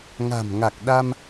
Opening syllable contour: low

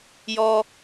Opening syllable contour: high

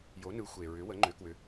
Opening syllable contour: rising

